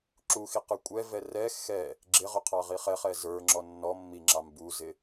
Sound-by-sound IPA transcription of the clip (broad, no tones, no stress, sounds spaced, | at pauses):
ǁ u x i q ə˞ kʷʼ ɛ v ɛ r ɛ x ɛ | ɡ͡ǁ ɪ ʁ ʊ qʰ ɑ ʁ i χ ɛ χ ɛ z ə˞ ŋ͡ǁ ɔ nː ɔ mː i ŋ͡ǁ ɑ m b u z ɪ